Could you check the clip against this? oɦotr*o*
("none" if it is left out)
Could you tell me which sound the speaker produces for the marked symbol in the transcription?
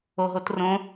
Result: õ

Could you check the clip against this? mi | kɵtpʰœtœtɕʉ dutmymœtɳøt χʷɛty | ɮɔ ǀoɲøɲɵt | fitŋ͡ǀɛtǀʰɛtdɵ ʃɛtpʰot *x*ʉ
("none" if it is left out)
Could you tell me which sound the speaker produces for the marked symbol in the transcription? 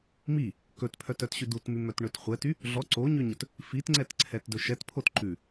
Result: ǃ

